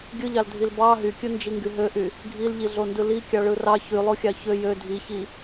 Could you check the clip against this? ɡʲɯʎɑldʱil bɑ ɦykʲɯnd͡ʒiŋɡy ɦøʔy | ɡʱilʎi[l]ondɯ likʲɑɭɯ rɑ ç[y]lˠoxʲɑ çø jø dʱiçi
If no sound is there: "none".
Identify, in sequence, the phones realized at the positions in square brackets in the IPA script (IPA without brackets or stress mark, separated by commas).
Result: ɮ, y